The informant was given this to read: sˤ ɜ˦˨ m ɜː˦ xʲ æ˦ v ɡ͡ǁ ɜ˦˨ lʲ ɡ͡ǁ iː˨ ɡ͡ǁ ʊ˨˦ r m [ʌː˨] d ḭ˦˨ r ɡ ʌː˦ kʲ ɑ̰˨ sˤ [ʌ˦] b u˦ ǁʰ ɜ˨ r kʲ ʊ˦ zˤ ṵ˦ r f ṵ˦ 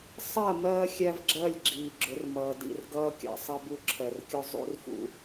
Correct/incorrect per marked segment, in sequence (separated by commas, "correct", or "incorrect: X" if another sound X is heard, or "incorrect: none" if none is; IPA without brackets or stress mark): correct, correct